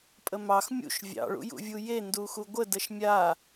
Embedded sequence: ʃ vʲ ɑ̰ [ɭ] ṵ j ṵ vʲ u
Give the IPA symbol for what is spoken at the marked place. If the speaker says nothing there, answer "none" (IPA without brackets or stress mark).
ɭ